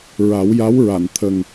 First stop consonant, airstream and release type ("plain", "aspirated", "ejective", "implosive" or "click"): aspirated